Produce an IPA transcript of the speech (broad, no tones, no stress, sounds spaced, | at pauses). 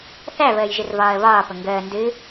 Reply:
θ æ β əː j ʒ ɨ r v ɒː ə̯ β ɒː p ə ŋ ɡ əː n d ɨ